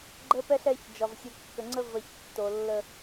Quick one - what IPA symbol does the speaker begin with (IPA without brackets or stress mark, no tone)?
ɡ͡ǃ